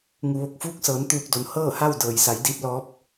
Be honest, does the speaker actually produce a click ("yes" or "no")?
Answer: no